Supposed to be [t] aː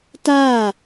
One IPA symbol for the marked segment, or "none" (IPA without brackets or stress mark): t